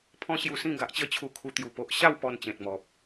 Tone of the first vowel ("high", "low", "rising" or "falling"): high